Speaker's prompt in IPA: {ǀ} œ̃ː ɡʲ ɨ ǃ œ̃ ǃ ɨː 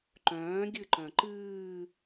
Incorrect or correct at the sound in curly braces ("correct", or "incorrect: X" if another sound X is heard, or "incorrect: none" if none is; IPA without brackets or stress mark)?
incorrect: ǃ